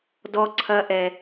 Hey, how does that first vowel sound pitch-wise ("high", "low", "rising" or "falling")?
high